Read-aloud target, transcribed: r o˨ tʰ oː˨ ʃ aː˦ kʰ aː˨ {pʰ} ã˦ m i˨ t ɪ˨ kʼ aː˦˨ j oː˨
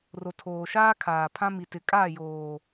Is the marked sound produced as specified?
yes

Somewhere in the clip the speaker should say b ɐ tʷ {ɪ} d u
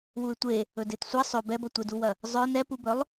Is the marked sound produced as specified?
yes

